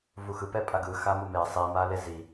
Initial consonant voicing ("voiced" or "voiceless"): voiced